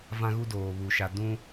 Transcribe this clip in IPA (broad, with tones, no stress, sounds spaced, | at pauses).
v ã˦ ɣ u˦ d oː˨ β u˨ ʃ a˨ d ũ˦